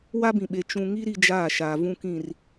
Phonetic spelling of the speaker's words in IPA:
w a˦ b ĩ˨ ɓ e˨ t͡ʃ ũ˨ ŋ i˦ ɾ i˦ d͡ʒ aː˦˨ ʃ aː˨ v ũ˨ k ĩ˨ r

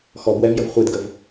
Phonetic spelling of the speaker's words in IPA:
x ɔ b w ɛ v j ə v χʷ e d ɡ ə v

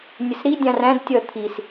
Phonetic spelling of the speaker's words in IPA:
nʲ ə s ɾ i dʲ ɑ̃ r æ̃ d tʲ ʌ t̪ʰ i s

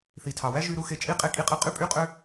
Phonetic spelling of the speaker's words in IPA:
θ i˨ tʰ ɑ˨ w æ˦ ʒ y˧ ɾ u˧ x e˧ t͡ʃʼ i˦ qʼ e˧ kʼ i˧ qʼ ɯ˧ qʼ y˦ pʼ y˦ qʼ ø˦

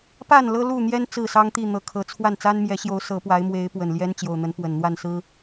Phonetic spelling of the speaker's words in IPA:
p a˥˨ n l ɤ˦ l u˥˨ n̪ j ɛ˦ n t͡s ɹ̩˥˨ s ɑ˦ ŋ t̪ i˥˨ n̪ ɤ˨˩ kʰ ɤ˨˦ t͡sʰ w a˥˨ n t͡s a˦ n m j ɛ˨˦ ɕ j o˨˦ ʊ̯ s ɤ˨˦ p w a˨˦ ɪ̯ m w e˨˦ ɪ̯ p w ə˨˩ n l j ɛ˦ n t͡ɕ j o˨˩ ʊ̯ n̪ ə˨˦ n p w ə˨˩ n n̪ w a˥˨ n s ɹ̩˦

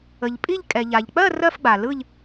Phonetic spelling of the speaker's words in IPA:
ə˩ ʎ pʼ i˥˧ ʎ kʼ ɛ˩ ʎ a˩ ʎ k͡p ɜ˥˧ r ɜ˥˧ f ɡ͡b a˩ l ɯ˥˧ ʎ

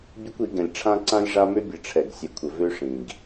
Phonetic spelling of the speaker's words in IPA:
bʲ ɘ˦ kʷ i˨˦ ɡ ɛ̃˨ lʲ ʈ͡ʂʰ ã˦ ǀ ã˦ lʲ ʐ a˦ m ø˦ bʲ ɘ˨ ʈ͡ʂʰ ɛ˨ ɡ sʲ ɘ˨ kʷʰ ə˨ v ø˦ ʂ ĩ˨ ɡ

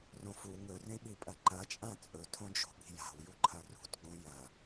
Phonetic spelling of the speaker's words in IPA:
r õ f u ŋ ɵ r ẽ ɓ i pʼ ɐ ǃ ɐ t͡ʃʼ ã t͡sʼ ɵ tʰ õ d͡ʒ o̤ ɓ i̤ j a̤ w j u ǃʰ ɐ r ṳ t ɡ͡b õ j ɐ

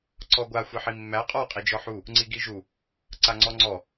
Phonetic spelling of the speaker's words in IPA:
ǀ ɔ ɡʷ a xʷ i ħ i mː æ qʼ ɔ qʼ i d͡ʒ ɔ ħ u | ŋ͡ǀ i ɡ i ʒ u | ǀ a ŋ͡ǀ ɔ ŋ͡ǀ ɔ

